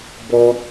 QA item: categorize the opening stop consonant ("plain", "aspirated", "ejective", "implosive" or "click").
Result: plain